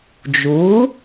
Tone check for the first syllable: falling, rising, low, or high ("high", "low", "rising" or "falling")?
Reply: rising